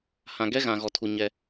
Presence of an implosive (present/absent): absent